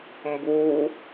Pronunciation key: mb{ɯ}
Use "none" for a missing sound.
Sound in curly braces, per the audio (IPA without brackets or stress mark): u